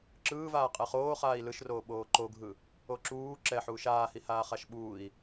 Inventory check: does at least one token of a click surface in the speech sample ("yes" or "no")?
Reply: yes